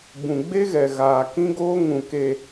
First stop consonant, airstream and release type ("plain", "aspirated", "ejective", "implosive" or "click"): plain